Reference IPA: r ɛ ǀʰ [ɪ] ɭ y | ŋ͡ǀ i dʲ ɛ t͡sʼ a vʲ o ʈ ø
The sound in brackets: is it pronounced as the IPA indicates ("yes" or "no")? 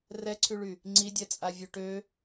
no